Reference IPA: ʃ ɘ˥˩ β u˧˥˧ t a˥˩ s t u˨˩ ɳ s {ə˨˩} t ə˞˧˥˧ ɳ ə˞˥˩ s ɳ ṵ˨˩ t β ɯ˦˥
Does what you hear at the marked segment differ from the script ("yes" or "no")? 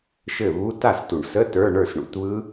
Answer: yes